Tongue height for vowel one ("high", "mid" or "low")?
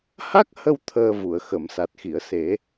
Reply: low